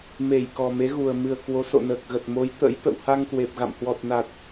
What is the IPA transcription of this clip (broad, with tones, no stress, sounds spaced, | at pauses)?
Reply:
m e˧˩ j k ɔ˨˩ m e˨˦ ɣ u˨˩ ə̯ m ɨ˧˩ ə̯ k w o˨˦ s o̰˧˨ n əː˨˩ k̚ ɣ ə˨˩ t̚ m o˨˦ j t̪ ə̰˧˥ j t̪ ə̰˧˨ w h a˧ ŋ k w e˨˩ p̚ ɣ a̰˧˨ m h w ɔ˨˩ t̚ n a˨˩ t̚